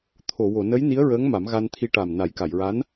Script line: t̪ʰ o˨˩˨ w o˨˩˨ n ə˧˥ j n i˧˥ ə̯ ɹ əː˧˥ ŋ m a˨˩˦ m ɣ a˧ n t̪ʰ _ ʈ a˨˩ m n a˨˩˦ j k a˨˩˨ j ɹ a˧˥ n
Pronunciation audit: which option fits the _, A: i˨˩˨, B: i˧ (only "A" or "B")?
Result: B